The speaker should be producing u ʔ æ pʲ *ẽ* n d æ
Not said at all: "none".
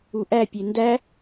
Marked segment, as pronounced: e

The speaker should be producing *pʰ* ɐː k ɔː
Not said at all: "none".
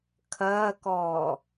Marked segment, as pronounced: kʰ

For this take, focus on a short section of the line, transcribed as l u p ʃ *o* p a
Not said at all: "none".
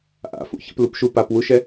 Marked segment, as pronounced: u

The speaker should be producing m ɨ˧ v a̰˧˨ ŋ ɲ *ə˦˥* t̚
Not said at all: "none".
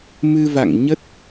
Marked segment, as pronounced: ə˦˥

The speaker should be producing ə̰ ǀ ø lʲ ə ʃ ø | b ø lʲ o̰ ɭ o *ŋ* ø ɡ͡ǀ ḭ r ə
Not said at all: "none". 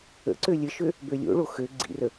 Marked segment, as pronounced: x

